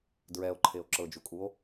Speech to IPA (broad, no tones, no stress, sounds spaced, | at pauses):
d ɹ ɛ o̯ ǃʰ e o̯ ǁ ɤ d͡ʒ u kʼ u o̯